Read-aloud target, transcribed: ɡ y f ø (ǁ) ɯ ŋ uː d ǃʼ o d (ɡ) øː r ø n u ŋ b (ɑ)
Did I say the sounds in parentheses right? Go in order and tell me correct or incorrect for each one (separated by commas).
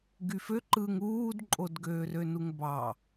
incorrect, correct, correct